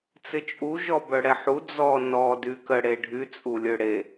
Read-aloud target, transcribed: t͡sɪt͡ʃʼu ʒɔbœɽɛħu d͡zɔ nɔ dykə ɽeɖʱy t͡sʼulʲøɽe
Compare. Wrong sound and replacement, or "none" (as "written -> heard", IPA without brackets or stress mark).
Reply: none